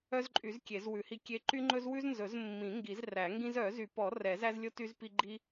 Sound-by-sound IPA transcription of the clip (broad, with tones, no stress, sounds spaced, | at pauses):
œ˦ z ǃʼ y˨˩˦ z kʲ e˨˩˦ z w ʉ˨˩˦ h i˦ kʲ e˦ ǃ y˦ ŋ͡ǃ ɵ˦ z w ʉ˦ z n z ɵ˨˩˦ z mː ĩ˨˩˦ ŋ ɡ i˨˩˦ z r æ˨˩˦ ŋ ɡ ĩ˦ z œ˨˩˦ z y˨˩˦ p ɔ˨˩˦ r ɛ˨˩˦ z æ˦ z lʲ o˦ t y˦ z p i˦ ɡ͡ǃ i˦